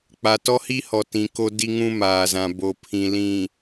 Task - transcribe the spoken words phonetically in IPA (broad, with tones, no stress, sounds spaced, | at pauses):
k͡p a˨ t ɔ˦ h i˦ h ɔ˨ t ĩ˨ k o˦ d i˦ ŋ ũ˦ m aː˨ z ã˨ b o˨ pʰ ĩ˨ l ĩ˨